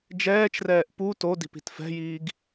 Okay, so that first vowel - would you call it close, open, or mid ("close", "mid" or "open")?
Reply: mid